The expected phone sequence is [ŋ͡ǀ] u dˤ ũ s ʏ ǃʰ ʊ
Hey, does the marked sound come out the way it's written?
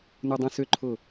no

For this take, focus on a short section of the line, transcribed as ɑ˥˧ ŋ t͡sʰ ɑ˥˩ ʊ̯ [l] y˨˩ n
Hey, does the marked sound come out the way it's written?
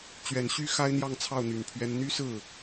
no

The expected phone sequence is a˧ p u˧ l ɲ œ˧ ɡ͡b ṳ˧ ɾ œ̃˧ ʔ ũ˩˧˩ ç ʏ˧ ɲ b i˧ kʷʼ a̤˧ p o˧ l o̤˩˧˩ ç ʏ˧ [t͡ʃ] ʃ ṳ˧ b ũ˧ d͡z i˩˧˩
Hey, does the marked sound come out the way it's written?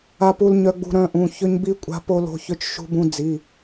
yes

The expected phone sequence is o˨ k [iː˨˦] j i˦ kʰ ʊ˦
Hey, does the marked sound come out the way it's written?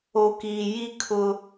no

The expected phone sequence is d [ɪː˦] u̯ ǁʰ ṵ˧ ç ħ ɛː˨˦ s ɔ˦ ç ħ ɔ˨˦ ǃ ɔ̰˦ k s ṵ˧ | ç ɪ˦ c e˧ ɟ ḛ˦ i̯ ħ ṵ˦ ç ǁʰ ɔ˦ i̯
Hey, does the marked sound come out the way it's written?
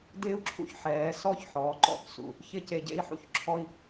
yes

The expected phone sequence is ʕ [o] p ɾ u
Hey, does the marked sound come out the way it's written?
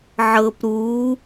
no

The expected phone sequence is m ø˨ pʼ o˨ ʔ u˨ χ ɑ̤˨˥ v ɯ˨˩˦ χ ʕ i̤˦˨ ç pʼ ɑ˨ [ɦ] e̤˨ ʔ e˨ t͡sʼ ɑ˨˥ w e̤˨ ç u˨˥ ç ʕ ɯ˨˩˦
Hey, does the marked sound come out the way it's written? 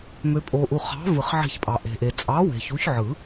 no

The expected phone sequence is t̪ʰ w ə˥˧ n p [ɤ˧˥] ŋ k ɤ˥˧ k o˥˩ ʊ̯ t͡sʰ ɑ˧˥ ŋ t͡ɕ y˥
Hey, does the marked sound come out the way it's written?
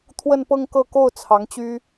no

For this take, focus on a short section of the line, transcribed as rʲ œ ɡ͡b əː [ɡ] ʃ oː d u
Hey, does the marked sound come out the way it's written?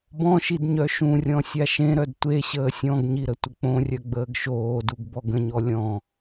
yes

